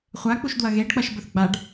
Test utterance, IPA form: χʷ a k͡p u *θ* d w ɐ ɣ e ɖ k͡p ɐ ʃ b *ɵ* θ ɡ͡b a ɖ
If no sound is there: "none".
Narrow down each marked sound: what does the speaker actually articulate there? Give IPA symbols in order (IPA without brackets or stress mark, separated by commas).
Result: ʃ, ɵ